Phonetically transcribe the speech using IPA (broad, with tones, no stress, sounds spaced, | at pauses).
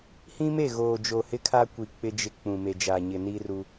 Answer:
h ĩ˦ m e˦˨ ɣ oː˨ d͡ʒ o˨ h ɪ˦ kʰ a˦ kʷ i˨ k͡p ɪ˦ d͡ʒ ɪ˦ k͡p ũ˨ m e˨ d͡ʒ aː˨ ɲ ɪ˨ n i˦ r u˦